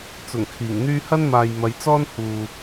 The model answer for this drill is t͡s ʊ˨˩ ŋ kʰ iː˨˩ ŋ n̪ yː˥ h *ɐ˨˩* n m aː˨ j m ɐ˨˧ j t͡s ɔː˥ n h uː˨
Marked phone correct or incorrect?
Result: incorrect: ɐ˥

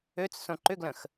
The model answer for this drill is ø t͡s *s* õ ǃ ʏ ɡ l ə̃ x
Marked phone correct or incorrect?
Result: correct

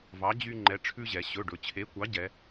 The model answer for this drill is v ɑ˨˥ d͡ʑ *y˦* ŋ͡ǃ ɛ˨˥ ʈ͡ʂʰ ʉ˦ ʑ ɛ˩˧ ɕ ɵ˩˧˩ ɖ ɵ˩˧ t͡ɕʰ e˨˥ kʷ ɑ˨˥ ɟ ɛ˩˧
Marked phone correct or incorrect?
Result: correct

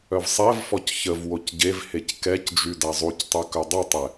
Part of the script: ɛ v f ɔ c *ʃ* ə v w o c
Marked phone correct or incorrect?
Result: incorrect: ç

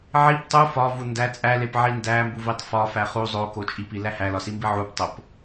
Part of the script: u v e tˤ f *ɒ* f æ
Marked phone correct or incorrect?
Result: correct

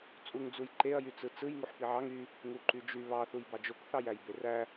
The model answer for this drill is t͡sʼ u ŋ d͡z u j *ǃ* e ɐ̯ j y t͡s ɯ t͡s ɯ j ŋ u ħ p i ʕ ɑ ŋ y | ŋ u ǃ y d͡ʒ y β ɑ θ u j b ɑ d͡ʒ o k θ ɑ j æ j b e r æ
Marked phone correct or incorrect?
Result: correct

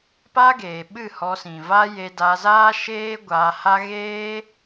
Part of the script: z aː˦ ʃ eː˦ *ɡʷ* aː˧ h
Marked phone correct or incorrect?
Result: correct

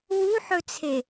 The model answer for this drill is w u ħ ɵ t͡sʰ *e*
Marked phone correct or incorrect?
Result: correct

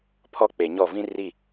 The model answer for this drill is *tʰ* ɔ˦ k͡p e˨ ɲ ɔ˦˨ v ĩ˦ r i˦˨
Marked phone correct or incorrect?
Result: incorrect: pʰ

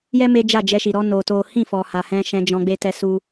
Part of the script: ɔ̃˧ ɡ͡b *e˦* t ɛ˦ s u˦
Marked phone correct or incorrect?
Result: correct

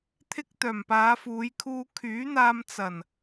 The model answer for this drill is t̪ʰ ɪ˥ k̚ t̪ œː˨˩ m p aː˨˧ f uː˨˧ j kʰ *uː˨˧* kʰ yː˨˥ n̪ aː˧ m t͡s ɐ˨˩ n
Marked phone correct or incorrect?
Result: incorrect: uː˧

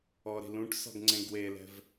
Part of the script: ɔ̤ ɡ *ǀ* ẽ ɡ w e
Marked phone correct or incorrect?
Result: incorrect: ŋ͡ǀ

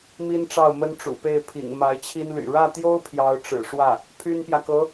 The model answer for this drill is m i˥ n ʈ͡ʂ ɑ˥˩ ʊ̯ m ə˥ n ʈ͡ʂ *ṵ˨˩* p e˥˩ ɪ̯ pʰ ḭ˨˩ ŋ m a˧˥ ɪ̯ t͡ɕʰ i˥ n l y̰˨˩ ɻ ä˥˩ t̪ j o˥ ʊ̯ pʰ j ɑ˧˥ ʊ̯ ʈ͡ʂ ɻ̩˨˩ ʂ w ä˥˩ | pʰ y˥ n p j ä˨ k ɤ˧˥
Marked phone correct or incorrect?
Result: correct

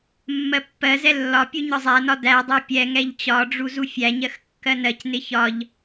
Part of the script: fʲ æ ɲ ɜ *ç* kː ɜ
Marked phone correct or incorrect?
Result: incorrect: x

